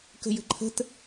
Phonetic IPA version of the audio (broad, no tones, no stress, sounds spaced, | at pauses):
k ə̤ j ə̤ ǃʰ ə̤ t